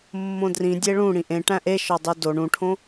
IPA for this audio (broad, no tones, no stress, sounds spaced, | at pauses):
mː õ d r ĩ dʲ e ɭ ũ ɽ ĩ ʔ ẽ ʈ æ̃ ʔ e ʃ ɒ dˤ u d o ɳ ũ ʈʰ õ